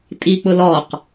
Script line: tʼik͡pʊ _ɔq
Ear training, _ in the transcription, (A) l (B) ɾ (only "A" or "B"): A